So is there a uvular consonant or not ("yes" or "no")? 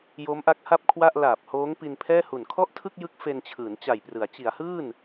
no